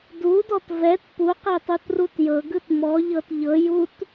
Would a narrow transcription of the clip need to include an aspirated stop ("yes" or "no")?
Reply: no